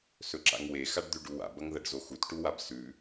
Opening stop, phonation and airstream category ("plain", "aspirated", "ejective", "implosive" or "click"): click